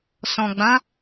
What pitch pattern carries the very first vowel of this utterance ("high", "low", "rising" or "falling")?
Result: low